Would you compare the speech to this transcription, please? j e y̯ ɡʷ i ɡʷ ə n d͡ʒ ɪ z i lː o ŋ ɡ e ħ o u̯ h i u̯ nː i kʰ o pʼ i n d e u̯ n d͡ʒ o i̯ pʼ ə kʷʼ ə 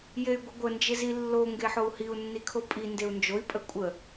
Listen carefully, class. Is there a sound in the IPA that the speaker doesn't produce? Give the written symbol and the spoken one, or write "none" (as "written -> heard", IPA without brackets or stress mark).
none